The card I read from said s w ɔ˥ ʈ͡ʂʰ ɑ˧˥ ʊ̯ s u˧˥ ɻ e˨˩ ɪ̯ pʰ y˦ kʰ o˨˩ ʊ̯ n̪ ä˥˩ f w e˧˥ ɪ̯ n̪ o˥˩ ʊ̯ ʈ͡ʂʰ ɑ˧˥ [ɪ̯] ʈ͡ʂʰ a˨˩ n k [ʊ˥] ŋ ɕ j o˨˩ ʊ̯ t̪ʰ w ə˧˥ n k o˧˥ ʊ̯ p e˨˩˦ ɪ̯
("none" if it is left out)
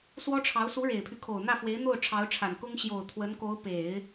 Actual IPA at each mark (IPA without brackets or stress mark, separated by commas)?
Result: ʊ̯, ʊ˥